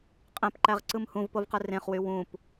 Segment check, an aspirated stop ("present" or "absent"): absent